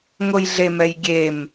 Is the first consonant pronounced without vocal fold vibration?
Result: no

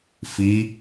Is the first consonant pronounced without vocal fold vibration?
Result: yes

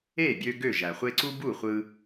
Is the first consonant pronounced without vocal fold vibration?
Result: no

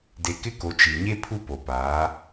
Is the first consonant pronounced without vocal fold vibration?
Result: no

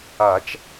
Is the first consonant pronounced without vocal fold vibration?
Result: yes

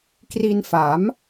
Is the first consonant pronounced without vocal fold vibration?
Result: yes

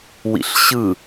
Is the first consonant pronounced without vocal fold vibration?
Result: no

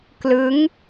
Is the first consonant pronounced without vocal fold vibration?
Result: yes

